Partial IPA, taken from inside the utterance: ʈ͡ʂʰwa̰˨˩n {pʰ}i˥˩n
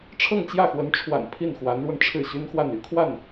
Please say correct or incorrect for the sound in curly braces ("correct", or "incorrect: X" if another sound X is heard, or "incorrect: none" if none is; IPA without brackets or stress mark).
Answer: correct